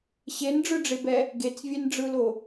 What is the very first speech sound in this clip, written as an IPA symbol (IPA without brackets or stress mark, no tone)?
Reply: ɕ